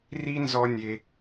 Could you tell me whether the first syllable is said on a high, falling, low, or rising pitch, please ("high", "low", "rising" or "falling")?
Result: high